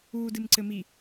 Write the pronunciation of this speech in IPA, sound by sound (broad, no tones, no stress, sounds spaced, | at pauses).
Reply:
uː d ɨ m ǀ ɘ m i